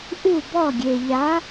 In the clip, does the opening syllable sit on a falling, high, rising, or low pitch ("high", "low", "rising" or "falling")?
falling